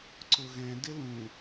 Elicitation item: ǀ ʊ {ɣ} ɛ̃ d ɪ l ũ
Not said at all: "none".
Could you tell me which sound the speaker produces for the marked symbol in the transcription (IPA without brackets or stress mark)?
ɣ